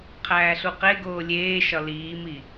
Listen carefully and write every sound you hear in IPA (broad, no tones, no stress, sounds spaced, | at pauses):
qʰ æː ɬ u q e ɡ oː lʲ eː ʃ ɒ l iː m i